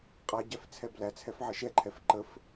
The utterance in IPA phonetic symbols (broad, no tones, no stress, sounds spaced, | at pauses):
qʼ a ɟ æ f t͡sʰ ɛ b l æ t͡sʰ ɛ f ʕ ə ʃ ɛ ǃʰ ɛ f ǃ ə f